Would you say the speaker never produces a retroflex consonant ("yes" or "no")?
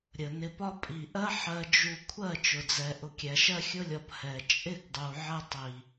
yes